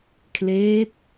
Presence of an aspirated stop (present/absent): present